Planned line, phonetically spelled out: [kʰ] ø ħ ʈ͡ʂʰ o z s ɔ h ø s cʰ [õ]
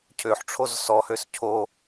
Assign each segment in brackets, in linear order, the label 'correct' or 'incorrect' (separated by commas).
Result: incorrect, incorrect